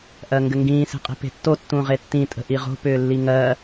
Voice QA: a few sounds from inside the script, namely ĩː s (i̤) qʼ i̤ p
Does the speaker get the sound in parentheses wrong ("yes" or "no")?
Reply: yes